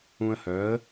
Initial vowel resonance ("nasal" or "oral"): nasal